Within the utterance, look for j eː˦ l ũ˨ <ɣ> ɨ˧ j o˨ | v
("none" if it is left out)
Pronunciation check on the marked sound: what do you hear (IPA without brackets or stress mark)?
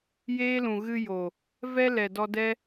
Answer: ɣ